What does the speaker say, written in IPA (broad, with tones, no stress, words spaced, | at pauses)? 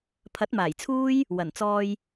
pʰɐ˨˥t̚maː˨˩jt͡sʰuː˥j | wɐ˨˩n t͡sɔː˧j